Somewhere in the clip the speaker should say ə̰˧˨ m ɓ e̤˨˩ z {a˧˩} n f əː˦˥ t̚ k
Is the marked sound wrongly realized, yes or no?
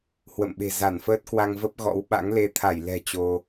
no